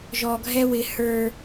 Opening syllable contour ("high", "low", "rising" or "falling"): low